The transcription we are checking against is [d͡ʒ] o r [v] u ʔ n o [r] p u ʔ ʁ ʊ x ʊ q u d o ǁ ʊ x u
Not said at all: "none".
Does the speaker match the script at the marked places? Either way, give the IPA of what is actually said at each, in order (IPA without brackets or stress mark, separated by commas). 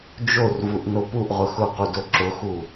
d͡ʒ, v, none